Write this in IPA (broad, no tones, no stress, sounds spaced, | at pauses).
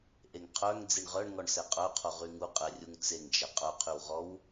ʔ e ŋ qʰ œ ŋ d͡z i ɳ ʁ œ ɳ ŋ ɔ ɳ s ɛ qʼ œ qʰ o ʁ y ŋ u qʼ ɛ rʲ u ŋ t͡s e ŋ d͡ʒ ɛ qʼ œ qʰ y w ʁ ɔ w